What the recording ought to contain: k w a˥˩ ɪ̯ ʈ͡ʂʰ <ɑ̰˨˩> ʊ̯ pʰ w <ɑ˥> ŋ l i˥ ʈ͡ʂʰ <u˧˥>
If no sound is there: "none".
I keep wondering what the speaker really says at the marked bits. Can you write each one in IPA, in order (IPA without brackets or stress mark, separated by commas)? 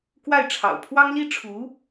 ɑ̰˨˩, ɑ˥, u˧˥